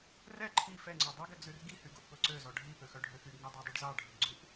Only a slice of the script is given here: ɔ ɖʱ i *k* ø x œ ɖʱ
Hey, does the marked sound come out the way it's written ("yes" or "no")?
no